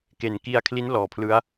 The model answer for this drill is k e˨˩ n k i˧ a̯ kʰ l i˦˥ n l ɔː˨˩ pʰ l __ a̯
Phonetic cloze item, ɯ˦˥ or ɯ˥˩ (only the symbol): ɯ˦˥